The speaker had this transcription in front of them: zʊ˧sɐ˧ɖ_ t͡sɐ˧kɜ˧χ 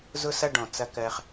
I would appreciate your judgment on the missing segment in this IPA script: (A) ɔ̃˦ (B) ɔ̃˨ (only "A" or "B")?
B